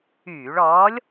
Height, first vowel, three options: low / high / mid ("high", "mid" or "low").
high